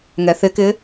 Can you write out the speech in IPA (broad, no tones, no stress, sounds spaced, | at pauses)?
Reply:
ŋ ɛ θ ɪ k ɪ